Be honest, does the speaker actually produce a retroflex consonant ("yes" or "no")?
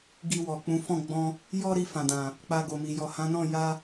no